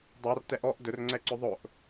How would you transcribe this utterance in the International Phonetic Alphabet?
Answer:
dˤ a r t ɛ ʔ ɔ ʔ d ɵ r ŋ͡ǀ ɛ ǀ ɵ ðˤ ʊ ʔ

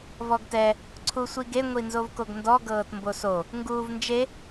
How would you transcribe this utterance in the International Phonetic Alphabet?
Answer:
v ɔ ɡ t ɛ | ǀʰ u sʷ i ɡ e ŋʷ i n z o v k o ɡ n d ɔ ɡ ɤː t m b o s o | ŋ ɡ uː v n d͡ʒ e

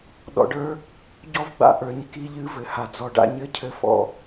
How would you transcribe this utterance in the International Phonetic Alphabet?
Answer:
ɗ ɔ̰˧ ɖ ə˞˥ | ɟ ɔ˥ v ɡ͡b a̰˥ ʔ ə˞˧ ɲ k i˧ ʎ ɨ˧ v ɘ˧ h a˧ d͡z ɔ˧ ɖ a̰˥ ɲ ɘ˥ cʰ ɘ˥ f ɔ̰˥

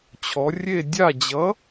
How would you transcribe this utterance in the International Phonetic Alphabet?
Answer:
t͡ɕʰ ɔ˩˧ rʲ e˦˨ dʲ a˦˨ d͡ʑ ʌ˨˥

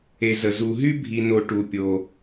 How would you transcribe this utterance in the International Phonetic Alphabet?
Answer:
e˨ z ə˩ z u˩ ɦ y˥ bʱ i˨ n o˨ ʈ u˩ pʲ o˩

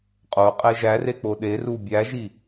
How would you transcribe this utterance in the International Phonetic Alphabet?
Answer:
qʼ o qʼ e ʒ æ r e k͡p o ɗ e r u bʲ æ ʒ i

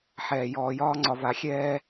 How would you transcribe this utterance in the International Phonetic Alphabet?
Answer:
ħ ɛː˨ j ɔː˨ j ɒː˦ ŋ͡ǀ ɒ˨ v a˨ xʲ ɛː˦

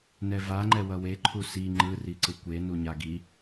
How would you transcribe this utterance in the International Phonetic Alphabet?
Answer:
n ɛ v a ŋ͡ǃ ɛ w ʌ w e ǃʰ u s i ŋ͡ǃ ɯ r i ǀ ɯ kʷ e n u ɲ a ɡ i

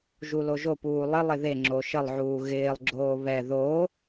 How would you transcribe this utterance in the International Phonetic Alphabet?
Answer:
ʒ u l o ʒ o p uː lˠ ɪ lˠ ɪ ð e ŋ͡ǁ o ʃ ə lˠ ʕ uː ɣ ɪː lˠ ɡ͡ǁ oː β ɛ ð o

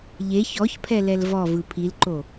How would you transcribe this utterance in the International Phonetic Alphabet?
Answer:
ʎ e ç ɔ ç pʰ ɛ l ɛ l v ɔ v ɯ pʰ i l ǃ o

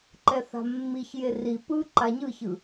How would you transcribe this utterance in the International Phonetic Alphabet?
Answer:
ǃ ɛ θ a̤ mː i ç j e r i p ɯ ǃ a ɲ ɯ ç ɯ

